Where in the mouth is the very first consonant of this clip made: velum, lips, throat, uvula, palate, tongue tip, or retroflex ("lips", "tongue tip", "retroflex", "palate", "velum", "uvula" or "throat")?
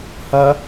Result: throat